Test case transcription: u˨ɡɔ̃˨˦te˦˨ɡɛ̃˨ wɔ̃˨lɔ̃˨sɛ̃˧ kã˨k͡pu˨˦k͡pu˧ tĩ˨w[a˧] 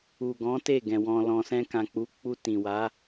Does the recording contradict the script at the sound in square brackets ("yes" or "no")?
yes